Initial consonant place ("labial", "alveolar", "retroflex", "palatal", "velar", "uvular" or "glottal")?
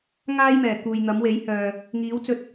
velar